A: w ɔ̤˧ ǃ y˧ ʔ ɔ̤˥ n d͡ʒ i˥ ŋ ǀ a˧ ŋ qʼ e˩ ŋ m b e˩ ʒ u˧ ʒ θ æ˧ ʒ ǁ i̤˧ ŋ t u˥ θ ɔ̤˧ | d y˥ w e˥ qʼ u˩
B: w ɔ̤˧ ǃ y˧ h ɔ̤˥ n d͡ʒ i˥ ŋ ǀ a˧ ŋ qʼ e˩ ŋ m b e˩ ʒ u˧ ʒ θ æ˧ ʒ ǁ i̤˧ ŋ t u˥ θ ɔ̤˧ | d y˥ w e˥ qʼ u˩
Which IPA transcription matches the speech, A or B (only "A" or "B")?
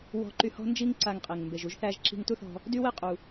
B